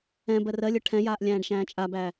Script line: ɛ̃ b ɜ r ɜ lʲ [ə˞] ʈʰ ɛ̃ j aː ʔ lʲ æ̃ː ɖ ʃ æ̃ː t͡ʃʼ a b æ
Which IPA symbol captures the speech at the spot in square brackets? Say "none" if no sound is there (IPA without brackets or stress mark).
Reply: ə˞